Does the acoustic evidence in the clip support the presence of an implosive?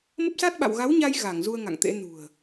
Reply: yes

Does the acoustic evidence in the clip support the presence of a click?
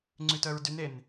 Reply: yes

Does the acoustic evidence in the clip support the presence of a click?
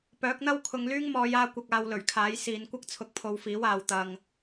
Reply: no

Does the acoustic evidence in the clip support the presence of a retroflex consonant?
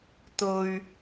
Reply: no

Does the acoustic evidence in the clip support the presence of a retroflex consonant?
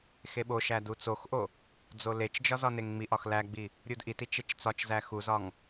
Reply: no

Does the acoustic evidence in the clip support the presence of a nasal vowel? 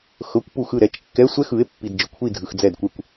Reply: no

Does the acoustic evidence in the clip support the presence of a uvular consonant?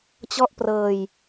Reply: no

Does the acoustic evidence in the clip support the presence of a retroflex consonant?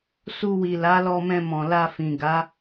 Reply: no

